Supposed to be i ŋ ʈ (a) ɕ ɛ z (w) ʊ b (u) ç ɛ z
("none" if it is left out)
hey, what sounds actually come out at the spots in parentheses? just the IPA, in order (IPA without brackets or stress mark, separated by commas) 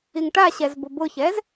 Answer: a, b, ʊ